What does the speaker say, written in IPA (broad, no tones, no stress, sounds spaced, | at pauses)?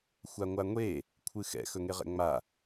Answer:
xʷ a ŋʷ a ŋʷ e | kʷʰ ɨ x ɛ̰ x ɵ ŋ e ʁ ɛ̰ ŋ͡m a